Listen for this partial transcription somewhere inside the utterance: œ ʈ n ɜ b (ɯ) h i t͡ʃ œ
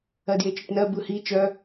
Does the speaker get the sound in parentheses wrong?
no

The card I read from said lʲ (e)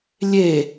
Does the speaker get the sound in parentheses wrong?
no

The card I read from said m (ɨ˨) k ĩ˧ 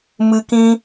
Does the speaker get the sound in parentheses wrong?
no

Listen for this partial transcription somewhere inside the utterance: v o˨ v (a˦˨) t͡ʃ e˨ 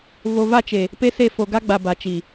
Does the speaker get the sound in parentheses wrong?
no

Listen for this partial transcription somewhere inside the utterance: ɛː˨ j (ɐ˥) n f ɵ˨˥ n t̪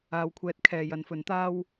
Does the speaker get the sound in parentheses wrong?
yes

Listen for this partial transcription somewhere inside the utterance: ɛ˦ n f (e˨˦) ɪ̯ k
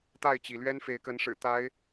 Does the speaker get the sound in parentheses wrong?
no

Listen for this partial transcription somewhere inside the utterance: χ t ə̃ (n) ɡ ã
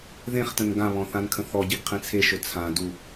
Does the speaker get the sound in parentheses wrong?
no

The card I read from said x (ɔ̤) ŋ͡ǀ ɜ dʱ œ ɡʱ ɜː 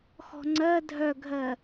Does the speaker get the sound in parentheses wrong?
no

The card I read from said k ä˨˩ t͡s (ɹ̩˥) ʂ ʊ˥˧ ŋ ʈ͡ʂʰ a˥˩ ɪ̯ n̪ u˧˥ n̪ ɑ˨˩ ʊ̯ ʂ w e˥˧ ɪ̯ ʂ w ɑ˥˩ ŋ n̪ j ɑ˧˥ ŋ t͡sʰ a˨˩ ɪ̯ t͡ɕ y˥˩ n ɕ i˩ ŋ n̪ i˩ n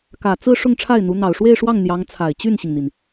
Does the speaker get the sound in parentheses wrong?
yes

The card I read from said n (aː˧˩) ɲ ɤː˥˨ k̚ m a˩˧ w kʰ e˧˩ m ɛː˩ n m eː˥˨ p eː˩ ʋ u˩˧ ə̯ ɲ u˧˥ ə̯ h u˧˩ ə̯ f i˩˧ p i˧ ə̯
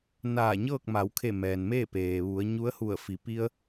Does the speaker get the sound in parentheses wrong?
no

